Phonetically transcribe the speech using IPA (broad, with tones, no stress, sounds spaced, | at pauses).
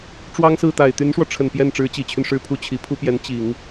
ʈ͡ʂ w ɑ˥ ŋ s ɹ̩˥˩ t̪ a˨˩ ɪ̯ t̪ y˧˥ n ʂ w ɔ˧ ʈ͡ʂʰ ə˨˩ n p j ɛ˥˩ n ʈ͡ʂ ɻ̩˧˥ t͡ɕ i˨˩ t͡ɕʰ y˦ n ʂ ɻ̩˧˥ pʰ u˧˥ t͡ɕʰ i˨˩ pʰ u˥ p j ɛ˧˥ n t͡ɕ i˨˩˦ ŋ